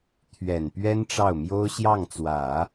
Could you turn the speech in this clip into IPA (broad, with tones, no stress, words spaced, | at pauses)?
t̪ʰɥɛ˨˩n pɥɛ˥nʈ͡ʂɑ˥˩ʊ̯mjo˥ʊ̯ ɕjɑ˥˩ŋt͡swä˨˩˦